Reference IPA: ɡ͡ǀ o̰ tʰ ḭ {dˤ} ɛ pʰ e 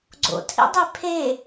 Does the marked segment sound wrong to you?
no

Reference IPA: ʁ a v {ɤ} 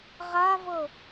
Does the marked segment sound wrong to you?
no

